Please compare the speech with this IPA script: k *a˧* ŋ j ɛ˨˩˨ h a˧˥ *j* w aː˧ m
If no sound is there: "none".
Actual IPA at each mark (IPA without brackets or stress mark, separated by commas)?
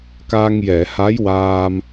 a˧, j